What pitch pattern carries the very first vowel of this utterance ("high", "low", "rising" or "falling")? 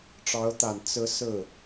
rising